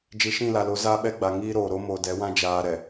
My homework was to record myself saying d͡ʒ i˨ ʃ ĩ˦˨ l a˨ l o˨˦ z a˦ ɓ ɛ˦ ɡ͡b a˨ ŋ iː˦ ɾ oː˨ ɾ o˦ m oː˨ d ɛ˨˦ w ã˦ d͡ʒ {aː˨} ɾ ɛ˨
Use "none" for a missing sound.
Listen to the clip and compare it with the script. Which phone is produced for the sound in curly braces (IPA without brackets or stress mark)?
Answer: aː˨